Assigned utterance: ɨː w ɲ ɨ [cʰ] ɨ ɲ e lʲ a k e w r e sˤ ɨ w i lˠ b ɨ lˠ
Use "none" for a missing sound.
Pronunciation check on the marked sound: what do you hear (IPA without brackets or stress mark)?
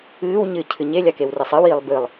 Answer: cʰ